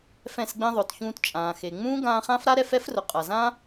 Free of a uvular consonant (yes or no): no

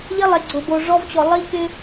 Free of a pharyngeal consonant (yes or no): yes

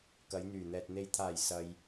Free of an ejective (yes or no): yes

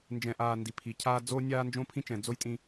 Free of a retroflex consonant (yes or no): yes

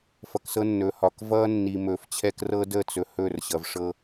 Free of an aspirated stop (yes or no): no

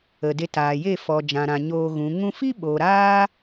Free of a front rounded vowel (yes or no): yes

